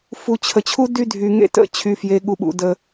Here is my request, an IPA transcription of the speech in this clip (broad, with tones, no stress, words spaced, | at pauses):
fu˨t͡ɕʰə˨t͡ɕʰu˦ dy˦dʱy˨ŋḛ˦ tə̰˦ t͡ɕʰy˨fje˨ɠu˨ɓṵ˨ də˦